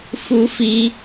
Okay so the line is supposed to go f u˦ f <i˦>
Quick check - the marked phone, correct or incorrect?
correct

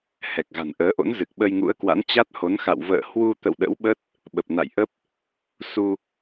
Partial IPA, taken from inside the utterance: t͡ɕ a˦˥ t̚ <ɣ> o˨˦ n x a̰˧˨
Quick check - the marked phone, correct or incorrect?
incorrect: h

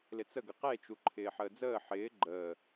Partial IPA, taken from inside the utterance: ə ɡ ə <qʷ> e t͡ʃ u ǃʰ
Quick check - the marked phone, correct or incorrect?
incorrect: q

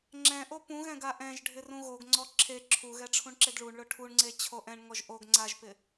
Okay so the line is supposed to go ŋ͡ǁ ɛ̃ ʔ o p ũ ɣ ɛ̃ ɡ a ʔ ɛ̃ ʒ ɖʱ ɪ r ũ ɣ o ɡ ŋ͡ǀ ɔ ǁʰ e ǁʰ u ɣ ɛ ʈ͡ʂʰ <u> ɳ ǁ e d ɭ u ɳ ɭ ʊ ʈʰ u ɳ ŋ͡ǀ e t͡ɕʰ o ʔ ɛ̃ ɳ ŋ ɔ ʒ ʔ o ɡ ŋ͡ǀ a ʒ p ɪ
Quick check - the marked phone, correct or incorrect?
incorrect: ũ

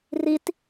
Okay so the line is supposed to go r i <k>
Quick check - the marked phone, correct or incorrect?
incorrect: t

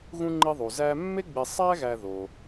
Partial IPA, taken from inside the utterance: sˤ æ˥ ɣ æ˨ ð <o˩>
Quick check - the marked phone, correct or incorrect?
correct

